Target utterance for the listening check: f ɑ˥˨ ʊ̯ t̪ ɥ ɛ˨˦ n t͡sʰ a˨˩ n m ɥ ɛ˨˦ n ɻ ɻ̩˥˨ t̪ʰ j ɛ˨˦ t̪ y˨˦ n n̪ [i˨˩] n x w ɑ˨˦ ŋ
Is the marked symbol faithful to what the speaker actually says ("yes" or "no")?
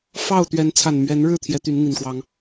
yes